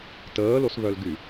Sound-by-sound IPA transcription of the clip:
təːlosβœlɡy

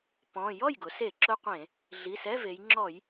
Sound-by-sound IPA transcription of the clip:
pɔ̃˩˧˩ jɔ˥˩jɡʊ˩˧se˧˩˧ ǁʊ˧˥˧qʷẽ˧˩˧ | ɮi˩˧˩sɛ˧˥˧ ve˩˧jŋ͡ǁɔ˧˩˧j

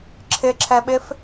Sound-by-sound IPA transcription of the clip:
ǁʰɪǁʰɛɓɪf

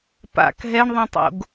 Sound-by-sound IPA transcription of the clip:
pa̰k ɦɛɳðˤɛ̃tˤo̰ɡ

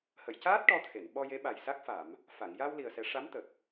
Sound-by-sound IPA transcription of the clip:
hə˨˩˨jcaː˦˥t̚ ʈɔ˧t̪ʰe˨˩˨n ɓɔ˧je˧˥ɓa˨˩jsa˦˥k̚ fa˨˩˨m | fa˨˩˨ŋ ja˧w li˨˩ə̯sɛ˨˩˦ ʂa˧˥mt̪ə˨˩k̚

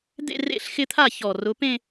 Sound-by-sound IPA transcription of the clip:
d̪ḛ˥˧rḛ˥˩ɬxɪ˥˧t̪ʰa˥˩ çɔ˨˩ rʊ˨˦pẽ˥˧

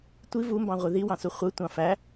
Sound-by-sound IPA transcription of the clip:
tʷi vumbɑ̃ʁʷi ðiwɑ̃su χʷɯtʷɑ̃ fæ

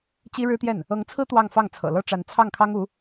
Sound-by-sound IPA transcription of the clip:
t͡ɕi˥ ɻɻ̩˥t̪jɛ˥˩n | ɤ˧˥ŋt͡sʰɹ̩˥ t̪wɑ˥˧ŋfɑ˥˩ŋ t͡sʰɤ̰˨˩lɤ˥ʈ͡ʂa˧˥n t͡sʰɑ˥˩ŋkʰɑ˥ŋu˧˥

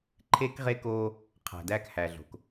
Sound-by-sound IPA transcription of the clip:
ǃʰe˦kʁe˦koː˦ | qʰæ̤˨dæː˦khæː˨ ɮo̤˨k

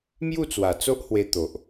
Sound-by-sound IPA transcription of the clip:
mju˥˧t͡swa˨˩t͡so˦ʔhwe˧ t̪o˨ʔ

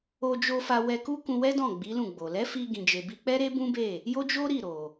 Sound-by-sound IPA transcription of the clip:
o˧d͡ʒo˧ fa˧wɛ˧ ku˦kũ˧wɛ˦dɔ̃˦˨ ɡ͡bi˨˦lũ˦˨ɡ͡bo˨ lɛ˨˦fi˧ ɡĩ˨d͡ʒe˨bi˧k͡pɛ˦ ɾe˦bũ˦be˦˨ | jo˦d͡ʒo˦ɾi˦˨ ɾo˨

